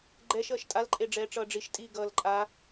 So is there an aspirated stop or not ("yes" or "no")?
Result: no